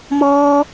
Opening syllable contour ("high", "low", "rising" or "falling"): high